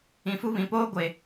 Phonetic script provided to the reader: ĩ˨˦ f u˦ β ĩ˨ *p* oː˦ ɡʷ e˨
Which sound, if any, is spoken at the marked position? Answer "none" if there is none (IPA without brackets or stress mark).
p